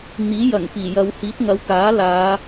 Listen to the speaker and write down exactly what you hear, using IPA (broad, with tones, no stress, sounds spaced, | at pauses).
n̪ iː˨˥ j ɐ˨˩ ŋ p iː˨˩ j ɐ˨˧ w h iː˨˥ t̚ ŋ ɐ˨˥ w k aː˨˥ l aː˨˧